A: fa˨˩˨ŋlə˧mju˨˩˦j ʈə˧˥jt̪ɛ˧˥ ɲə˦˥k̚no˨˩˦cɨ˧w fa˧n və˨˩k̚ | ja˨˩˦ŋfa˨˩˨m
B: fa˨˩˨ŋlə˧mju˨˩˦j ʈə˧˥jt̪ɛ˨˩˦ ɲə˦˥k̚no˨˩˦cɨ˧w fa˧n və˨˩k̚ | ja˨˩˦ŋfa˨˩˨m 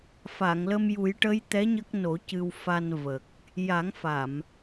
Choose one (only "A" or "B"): A